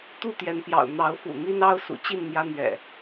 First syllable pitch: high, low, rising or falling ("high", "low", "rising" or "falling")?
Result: falling